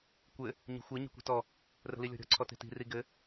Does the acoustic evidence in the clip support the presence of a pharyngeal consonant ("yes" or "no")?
no